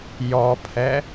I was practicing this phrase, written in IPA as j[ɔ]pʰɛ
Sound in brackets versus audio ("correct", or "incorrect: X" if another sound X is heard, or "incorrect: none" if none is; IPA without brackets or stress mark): correct